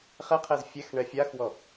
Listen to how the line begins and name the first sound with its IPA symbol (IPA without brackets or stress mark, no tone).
χ